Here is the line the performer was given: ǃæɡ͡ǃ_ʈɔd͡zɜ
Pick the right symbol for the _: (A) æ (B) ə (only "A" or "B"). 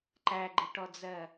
B